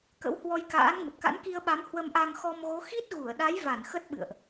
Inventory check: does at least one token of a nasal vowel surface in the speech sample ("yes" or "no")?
no